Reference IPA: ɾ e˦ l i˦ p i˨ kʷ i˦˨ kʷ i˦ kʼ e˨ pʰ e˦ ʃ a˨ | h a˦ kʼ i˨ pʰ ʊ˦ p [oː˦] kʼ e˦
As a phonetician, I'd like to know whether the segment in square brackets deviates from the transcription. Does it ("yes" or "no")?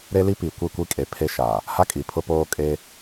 no